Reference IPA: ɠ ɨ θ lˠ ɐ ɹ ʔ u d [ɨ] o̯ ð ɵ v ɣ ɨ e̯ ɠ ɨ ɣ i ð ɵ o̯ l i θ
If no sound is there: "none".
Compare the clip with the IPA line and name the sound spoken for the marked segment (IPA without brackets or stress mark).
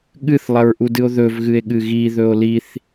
ɨ